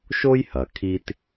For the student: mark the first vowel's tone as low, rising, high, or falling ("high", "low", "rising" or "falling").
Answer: high